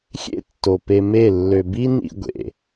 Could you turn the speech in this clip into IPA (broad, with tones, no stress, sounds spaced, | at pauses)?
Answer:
xʲ ḛ˦ tː o˨ p e˧ m e˦˨ lː ø˨ b i˦ n ḭ˧ ɡʷ ḛ˨